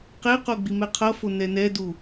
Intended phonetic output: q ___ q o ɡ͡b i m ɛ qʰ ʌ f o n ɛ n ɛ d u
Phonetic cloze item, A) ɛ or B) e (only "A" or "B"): B